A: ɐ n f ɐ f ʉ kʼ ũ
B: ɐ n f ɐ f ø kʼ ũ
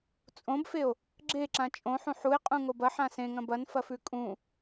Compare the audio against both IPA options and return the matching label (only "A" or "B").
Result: A